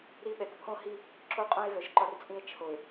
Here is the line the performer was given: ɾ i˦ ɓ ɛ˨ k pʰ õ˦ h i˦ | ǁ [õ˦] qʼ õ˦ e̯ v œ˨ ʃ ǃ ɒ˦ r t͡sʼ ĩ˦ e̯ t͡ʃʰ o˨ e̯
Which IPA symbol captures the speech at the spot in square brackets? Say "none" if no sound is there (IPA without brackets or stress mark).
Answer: o˦